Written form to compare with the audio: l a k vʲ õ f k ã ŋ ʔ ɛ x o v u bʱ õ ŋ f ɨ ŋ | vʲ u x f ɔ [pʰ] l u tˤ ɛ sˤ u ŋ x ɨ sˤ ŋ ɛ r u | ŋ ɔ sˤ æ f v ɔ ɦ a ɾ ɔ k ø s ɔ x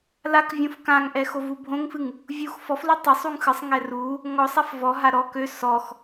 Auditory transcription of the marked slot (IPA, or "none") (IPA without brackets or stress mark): f